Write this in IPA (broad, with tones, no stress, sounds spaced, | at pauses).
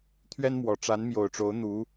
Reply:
t̪ʰ ɥ ɛ˥ n m w ɔ˨˩ ʈ͡ʂ a˧˥ n m j o˨˩ ʊ̯ ʈ͡ʂ o˧˥ ʊ̯ n̪ u˧˥